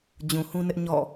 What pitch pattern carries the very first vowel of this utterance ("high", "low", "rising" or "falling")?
low